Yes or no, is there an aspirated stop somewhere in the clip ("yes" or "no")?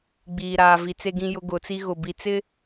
no